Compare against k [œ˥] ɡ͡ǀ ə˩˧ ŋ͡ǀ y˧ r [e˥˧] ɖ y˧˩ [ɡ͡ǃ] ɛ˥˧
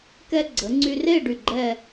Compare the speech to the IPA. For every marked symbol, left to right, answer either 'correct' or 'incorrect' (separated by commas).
incorrect, correct, correct